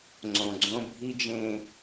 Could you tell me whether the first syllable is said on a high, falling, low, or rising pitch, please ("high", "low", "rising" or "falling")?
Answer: low